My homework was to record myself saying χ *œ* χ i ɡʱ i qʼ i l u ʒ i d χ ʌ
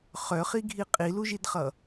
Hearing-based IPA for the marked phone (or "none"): œ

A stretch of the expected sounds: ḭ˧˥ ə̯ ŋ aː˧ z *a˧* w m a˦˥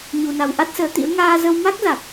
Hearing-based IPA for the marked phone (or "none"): ə˧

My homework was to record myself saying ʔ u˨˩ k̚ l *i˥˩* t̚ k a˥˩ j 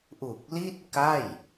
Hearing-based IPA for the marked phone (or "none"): i˥˩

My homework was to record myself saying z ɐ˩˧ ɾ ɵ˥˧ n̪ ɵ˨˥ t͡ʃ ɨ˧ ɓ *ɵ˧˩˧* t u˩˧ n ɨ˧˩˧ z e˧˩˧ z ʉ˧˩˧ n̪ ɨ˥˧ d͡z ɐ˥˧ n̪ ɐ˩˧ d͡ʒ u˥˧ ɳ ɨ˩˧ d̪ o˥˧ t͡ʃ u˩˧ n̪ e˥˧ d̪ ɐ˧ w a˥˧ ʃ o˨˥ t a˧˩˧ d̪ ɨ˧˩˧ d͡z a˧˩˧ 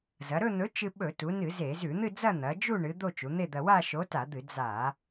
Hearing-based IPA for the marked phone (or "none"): ɵ˧˩˧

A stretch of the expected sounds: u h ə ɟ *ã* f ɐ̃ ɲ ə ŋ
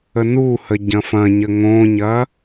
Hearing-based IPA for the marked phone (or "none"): ɐ̃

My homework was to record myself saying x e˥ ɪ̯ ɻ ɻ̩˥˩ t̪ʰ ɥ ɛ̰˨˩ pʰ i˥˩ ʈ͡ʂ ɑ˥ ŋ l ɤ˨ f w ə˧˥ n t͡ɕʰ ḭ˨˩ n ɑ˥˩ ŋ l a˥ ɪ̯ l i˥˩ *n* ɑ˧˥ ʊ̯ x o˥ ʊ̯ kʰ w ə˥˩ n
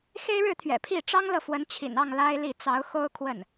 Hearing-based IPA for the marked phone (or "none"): t͡s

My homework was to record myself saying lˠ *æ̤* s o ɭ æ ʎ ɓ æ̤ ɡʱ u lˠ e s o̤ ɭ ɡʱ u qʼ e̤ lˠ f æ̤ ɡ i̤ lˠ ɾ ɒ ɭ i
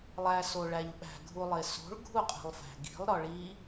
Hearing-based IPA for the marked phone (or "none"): æ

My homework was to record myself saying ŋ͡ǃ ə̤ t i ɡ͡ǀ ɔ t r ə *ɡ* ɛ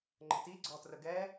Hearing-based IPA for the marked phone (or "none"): ɡ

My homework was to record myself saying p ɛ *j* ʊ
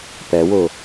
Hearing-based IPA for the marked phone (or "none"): w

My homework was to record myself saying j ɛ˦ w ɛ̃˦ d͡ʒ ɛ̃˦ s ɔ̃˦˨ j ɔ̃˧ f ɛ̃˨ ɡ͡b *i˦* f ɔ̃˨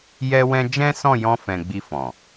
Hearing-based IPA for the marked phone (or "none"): i˧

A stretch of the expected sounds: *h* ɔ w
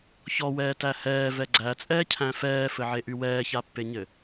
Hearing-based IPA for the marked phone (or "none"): ç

